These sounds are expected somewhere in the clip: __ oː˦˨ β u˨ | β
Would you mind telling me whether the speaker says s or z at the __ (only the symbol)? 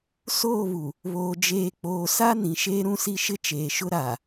s